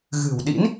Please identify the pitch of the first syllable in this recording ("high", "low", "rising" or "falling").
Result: low